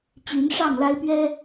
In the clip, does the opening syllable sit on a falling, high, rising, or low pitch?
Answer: rising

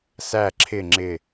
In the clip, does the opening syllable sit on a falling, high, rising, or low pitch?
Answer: falling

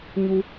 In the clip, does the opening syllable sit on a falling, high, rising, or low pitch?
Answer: high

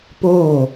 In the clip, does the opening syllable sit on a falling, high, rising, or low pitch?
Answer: falling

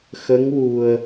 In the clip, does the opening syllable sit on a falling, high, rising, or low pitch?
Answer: rising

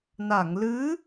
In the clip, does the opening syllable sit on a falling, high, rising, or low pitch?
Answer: low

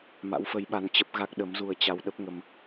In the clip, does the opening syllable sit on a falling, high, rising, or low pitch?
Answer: rising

